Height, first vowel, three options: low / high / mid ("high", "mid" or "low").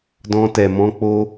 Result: mid